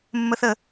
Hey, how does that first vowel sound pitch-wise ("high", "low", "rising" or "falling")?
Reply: high